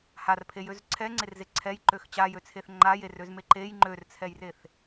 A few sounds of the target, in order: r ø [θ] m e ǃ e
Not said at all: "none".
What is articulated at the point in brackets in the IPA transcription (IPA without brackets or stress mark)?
z